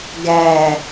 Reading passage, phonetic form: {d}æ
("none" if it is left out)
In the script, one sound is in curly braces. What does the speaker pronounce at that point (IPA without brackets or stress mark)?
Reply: ɡ